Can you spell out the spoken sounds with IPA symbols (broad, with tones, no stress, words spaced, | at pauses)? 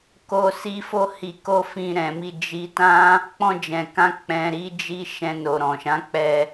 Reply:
ko˧si˧ fo˦hi˧ko˦ fĩ˧ɾɛ̃˨mi˧ d͡ʒi˧tã˦ | k͡pɔ̃˧d͡ʒɛ̃˨kã˧ k͡pɛ̃˧ɾi˦d͡ʒi˦ ʃɛ̃˧no˨ ɾɔ̃˨ ʃã˨˦k͡pɛ˧